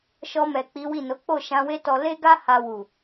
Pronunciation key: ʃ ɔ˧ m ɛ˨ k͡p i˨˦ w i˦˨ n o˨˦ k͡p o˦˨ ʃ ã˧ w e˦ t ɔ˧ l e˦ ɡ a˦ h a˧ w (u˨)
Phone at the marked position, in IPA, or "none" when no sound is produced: u˨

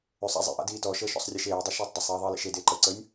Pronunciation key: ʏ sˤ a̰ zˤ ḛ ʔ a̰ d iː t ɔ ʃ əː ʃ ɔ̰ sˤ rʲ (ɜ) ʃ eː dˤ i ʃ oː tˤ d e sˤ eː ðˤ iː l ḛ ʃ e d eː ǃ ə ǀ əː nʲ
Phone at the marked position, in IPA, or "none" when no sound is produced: ɜ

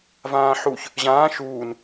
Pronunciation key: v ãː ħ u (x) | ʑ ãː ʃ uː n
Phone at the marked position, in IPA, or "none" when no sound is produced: ç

